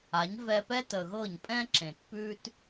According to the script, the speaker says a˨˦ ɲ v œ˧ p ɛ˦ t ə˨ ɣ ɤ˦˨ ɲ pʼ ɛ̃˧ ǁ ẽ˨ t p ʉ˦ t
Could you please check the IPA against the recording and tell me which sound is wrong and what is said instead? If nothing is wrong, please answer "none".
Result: œ˧ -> ɛ˧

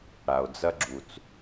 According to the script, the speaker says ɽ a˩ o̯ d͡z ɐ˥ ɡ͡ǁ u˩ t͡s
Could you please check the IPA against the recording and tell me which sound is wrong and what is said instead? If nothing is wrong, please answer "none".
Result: none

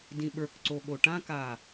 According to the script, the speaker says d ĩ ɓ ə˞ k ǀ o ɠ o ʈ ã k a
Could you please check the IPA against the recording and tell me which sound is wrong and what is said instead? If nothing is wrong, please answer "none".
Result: none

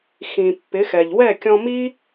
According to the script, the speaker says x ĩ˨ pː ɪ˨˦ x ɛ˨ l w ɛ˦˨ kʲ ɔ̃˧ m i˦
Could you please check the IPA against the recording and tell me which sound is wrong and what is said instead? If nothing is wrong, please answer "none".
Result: l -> ʎ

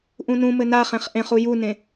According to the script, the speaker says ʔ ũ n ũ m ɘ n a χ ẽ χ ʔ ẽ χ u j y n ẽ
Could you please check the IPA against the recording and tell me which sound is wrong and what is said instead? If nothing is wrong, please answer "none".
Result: y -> u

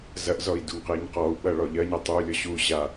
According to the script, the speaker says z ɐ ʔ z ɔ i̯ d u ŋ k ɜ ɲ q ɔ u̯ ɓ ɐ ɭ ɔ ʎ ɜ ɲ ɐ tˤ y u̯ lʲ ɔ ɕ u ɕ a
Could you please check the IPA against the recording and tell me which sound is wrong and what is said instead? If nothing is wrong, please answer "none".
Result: k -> q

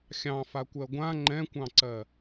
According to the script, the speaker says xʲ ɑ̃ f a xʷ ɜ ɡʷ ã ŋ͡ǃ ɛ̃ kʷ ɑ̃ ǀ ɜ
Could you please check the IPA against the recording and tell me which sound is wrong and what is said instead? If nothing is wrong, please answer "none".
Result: xʷ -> kʷ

